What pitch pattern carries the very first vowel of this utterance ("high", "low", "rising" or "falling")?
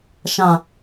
low